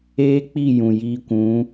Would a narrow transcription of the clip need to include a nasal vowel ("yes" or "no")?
yes